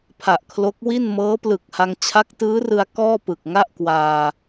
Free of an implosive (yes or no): yes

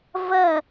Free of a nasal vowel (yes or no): yes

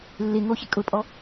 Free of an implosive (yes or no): yes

